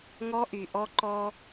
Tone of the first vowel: high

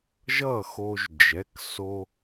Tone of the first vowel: falling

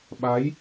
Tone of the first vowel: rising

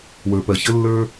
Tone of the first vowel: low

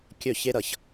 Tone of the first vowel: falling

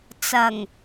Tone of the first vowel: low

